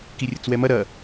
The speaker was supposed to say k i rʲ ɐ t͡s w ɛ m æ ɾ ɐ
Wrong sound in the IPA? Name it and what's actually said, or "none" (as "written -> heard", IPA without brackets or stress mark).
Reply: æ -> ɐ